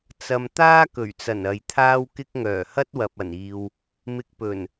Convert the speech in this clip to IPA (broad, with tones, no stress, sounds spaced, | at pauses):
t͡s ɐ˧ m t̪ aː˥ k ɵ˨˩ ɥ t͡s ɐ˨˩ n ɐ˨ j t̪ʰ aː˥ w k ɪ˥ k̚ ŋ œː˨˩ h ɐ˥ t̚ w ɐ˨ p̚ ɐ˨˩ n iː˨ w | m ɪ˧ k̚ p ɵ˨˩ n